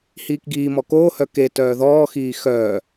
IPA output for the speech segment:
h iː k ɡ iː m ɔ k oː h œ k e t œː ð ɔː x iː x œː

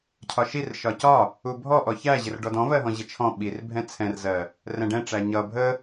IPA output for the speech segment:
cʰ ɒ ʃ i r ʃ ɒ c ɒ | u bʱ ɔ ʔ ɔ ç æ ʑ ɪ r ɖ ɔ d ɔ̃ v ɜ ɦ ɔ̃ ʑ ɪ t͡ʃʰ ɔ̃ ɓ i r bʱ ɛ̃ t͡sʰ ɛ̃ r z ɜ | r ɛ̃ ɖ ɛ̃ ʈ͡ʂ æ ɲ ʌ bʱ ə

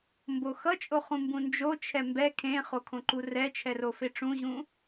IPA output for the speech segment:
m b o x ʌ t͡ʃʼ o χ ũ m b ũ n d͡ʒ o t͡ʃʰ ɛ m b ɛ kʰ ẽ χ o kʰ õ ǃ u r ɛ t͡ʃʰ ɛ r o f e ʈ͡ʂ ũ ʑ ũ

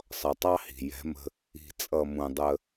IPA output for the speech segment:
sˤ ʌ˨ tˤ ɑ˦ h i̤˨ j ɛ̤˨˦ m ə̤˦ | i̤˨ t͡sʼ ʌ˨ m ũ˨ dˤ ə˦

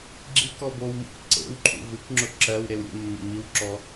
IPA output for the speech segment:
ɡ͡ǁ i k ɔ b o w m ṵ k ǀ ḛ w ǃʰ ṵ v ɨ k ŋ͡ǁ ʊ ǁ ɜ w ɾ e w ɾʲ ḛ mː ə̰ m i w ǁ ɔ

